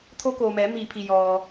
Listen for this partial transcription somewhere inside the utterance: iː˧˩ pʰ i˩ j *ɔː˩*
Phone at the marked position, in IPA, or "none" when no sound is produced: ɔː˩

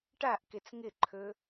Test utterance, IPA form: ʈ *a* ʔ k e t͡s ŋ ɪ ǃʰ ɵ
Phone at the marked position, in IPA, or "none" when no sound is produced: a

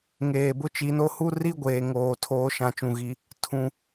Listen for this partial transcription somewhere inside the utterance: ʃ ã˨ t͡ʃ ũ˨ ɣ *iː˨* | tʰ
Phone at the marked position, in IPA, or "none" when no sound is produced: i˨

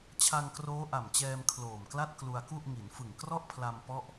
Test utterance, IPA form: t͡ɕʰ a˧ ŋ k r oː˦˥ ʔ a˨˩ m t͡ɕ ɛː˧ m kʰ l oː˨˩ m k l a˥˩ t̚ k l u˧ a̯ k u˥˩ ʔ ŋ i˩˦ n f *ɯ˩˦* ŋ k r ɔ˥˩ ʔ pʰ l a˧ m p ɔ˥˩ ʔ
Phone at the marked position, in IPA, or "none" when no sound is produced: ɯ˨˩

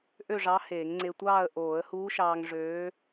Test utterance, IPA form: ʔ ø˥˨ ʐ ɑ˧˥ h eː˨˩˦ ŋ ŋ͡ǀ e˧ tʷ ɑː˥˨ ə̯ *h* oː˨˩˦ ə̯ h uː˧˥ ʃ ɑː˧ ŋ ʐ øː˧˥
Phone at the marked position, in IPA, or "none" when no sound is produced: ʔ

